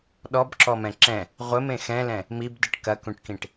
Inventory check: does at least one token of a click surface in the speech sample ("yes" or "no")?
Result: yes